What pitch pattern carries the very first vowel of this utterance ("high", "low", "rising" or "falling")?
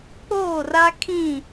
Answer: falling